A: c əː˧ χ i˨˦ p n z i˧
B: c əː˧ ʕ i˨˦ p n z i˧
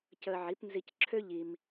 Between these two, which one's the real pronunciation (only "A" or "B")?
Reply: B